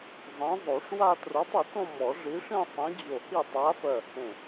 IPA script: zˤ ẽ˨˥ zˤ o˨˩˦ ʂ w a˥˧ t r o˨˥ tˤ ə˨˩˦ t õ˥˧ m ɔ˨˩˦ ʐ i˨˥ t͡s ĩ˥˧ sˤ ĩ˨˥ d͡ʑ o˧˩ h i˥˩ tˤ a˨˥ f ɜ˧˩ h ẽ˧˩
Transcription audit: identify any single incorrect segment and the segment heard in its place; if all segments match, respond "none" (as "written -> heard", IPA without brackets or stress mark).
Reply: t͡s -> ʂ